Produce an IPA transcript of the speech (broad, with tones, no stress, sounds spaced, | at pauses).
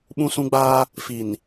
ɓ ũ˦ s ũ˦ ɡ͡b aː˦ | f i˨ n